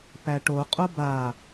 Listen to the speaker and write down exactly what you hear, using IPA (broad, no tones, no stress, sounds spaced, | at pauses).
p æ ʈ o qʼ o b a